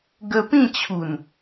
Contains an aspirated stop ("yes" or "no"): yes